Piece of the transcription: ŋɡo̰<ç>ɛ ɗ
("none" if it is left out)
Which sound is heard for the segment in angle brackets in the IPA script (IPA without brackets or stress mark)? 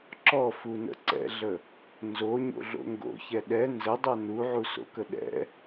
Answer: ç